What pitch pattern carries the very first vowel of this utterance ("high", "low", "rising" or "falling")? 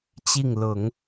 falling